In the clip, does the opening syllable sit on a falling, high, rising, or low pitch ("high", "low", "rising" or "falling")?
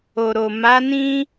low